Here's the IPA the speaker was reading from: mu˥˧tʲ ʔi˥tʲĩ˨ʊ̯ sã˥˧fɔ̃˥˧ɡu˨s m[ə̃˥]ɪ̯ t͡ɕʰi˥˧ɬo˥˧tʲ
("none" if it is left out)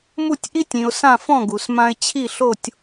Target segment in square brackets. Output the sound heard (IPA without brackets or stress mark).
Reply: ã˥